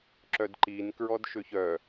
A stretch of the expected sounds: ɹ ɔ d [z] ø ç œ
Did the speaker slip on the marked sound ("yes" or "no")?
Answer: yes